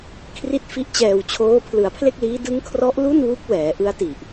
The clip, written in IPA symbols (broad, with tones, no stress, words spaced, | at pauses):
kʰri˦˥t̚fi˦˥ʔt͡ɕɛː˨˩wt͡ɕʰoː˦˥ pʰlɯ˩˦a̯pʰle˥˩k̚liː˦˥ dɯ˦˥ŋkʰrɔ˦˥ʔ lu˥˩nwu˦˥k̚ wɛː˩˦ʔɯ˦˥a̯ti˨˩ʔ